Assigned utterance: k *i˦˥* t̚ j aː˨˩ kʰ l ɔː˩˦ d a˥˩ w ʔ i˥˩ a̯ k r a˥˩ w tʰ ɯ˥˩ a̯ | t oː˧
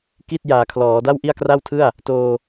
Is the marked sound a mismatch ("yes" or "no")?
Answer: yes